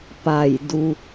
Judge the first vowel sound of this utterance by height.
low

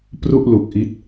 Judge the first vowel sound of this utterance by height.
high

